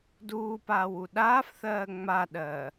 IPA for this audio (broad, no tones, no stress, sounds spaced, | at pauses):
d uː p aː w u ɗ aː f θ ɜː ŋ͡m a ɗ ɜː